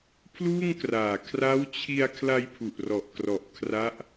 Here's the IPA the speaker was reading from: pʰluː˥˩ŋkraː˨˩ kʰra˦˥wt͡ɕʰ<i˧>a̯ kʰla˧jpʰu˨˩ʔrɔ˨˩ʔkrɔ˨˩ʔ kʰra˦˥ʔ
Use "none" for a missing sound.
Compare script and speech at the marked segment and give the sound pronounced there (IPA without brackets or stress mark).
i˧